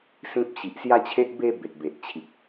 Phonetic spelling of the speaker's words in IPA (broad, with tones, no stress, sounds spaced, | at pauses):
s ĩ˦ p̚ ɕ i˨ ʔ s j a˦ t͡ɕʰ e˦ ʔ b e˦ b e˨ t̚ b e˨ ʔ t͡ɕʰ i˨ k̚